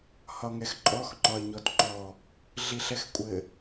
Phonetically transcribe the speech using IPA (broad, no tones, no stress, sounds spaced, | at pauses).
h ɒ ŋ ɛ x ǃʼ ɔ x ŋ͡ǃ ɒ ə̯ ɲ ɔ t ŋ͡ǃ ɔ | ɮ i ɬ ɛ x kʷʼ ɘ